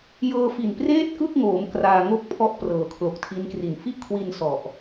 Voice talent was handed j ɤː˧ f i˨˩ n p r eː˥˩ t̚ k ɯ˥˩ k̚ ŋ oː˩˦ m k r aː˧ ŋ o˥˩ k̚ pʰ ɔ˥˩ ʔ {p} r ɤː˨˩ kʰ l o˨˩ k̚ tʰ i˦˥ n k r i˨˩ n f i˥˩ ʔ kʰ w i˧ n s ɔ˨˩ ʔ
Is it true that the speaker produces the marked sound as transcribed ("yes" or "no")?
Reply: yes